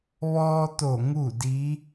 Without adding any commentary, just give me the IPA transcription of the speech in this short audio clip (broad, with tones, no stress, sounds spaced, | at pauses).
ʋ ɔː˧ t̪ o˧˩ ŋ u˥˨ d i˧˥